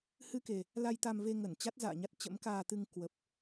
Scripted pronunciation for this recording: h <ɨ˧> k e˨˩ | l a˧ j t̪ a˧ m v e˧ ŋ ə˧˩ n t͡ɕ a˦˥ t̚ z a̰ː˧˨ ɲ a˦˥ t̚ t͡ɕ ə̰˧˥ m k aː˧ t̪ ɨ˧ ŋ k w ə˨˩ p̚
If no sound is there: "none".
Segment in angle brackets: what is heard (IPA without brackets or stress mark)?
ɨ˧